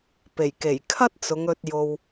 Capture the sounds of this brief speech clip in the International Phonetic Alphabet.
p e˨˩ j k e˨˩ j kʰ ɐ˥ t̚ t͡s ʊ˨˧ ŋ ɵ˧ t̚ j o˧ w

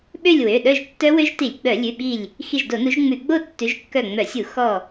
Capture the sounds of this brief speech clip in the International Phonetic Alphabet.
ɓ ø˥˧ lʲ w ø˩˧˩ ɗ œ˥˧ ʒ tː œ˦˥ w ø˦˥ ʒ t i˧˩˧ lʲ ɡ͡b œ˧˩˧ lʲ ʉ˩˧˩ ɓ i˧˩ lʲ | x i˧˩ ʒ d o˧˩˧ n u˨˦ ʒ ŋ͡m ʉ˧˩˧ ɡ͡b o˥˧ tː ʉ˨˦ ʒ kː œ˧˩ ŋ͡m œ˧˩˧ sʲ u˧˩˧ x ɔ˧˩

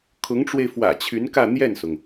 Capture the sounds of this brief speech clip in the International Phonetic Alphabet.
kʰ ʊ˧˥ ŋ ʈ͡ʂ w e˧ ɪ̯ f w ä̰˨˩ t͡ɕʰ y˧˥ n k ä˥˧ n̪ j ɛ˥˩ n s ʊ˩ ŋ

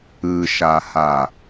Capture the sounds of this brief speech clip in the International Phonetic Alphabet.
ɯ ʃ a h a

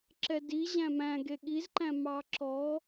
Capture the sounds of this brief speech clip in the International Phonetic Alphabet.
ǁ ɛ d i ʑ æ̃ m æ̃ ɡ e ɠ i z ǃ æ̃ m ɑ ǁ ɔ

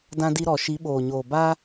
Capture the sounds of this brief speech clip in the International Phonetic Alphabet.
d ã˧ d i˧ ɾ ɔ˨ ʃ i˨˦ ɓ oː˨ ɲ oː˨ b a˦

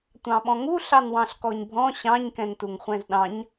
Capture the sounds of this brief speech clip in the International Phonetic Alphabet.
tʷ ɑ̃ ɓ ɔ̃ ŋ u ɬ ɑ n w ɑ̃ ɬ k ɔ ɲ bʱ ɔ̃ ɕ ɑ̃ ɲ k ɛ̃ n t u ŋ χʷ ɛ̃ z ɗ ɑ̃ ɲ

